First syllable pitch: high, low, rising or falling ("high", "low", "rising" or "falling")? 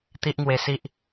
high